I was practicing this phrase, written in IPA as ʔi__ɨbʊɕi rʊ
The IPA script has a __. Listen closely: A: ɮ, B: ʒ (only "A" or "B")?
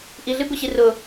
A